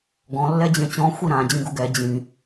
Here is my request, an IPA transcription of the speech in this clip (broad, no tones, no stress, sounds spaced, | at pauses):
ɡ ɔ̃ lː ɛ d͡ʑ ẽ t͡ɕ ɔ̃ xʷ i ɾ ã d͡ʑ ĩ ɡ u ɡ ɛ d͡ʑ ĩ